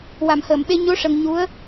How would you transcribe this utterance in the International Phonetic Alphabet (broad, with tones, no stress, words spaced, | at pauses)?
wa˨˩˨mhəː˨˩˨mɓe˧ ɲo˧˥ ʂə˧ŋ ɲu˧˥ə̯